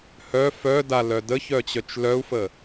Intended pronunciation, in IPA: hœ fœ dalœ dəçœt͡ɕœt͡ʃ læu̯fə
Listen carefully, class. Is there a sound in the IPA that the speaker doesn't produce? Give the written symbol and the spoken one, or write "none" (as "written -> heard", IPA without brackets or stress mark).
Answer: æ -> œ